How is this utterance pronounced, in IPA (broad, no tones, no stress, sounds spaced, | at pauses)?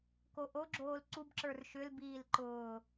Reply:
k o ʔ o ɡ͡ǁ oː l ǀ u b ǁ ə˞ r ʃ ʏ l b iː l ǃ ʊː